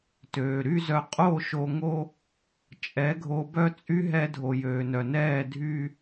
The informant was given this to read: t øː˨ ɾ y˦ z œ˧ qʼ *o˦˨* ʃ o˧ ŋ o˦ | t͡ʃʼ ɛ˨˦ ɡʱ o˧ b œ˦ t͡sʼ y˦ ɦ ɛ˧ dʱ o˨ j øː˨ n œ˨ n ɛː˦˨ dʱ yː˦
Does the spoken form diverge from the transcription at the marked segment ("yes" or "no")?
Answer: no